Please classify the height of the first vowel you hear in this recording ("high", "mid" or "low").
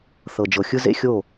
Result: mid